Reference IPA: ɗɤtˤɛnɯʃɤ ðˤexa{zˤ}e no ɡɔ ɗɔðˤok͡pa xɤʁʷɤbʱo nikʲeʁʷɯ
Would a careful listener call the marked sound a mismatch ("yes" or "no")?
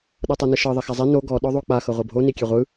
no